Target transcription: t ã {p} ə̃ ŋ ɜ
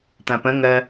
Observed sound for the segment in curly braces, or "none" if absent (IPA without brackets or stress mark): p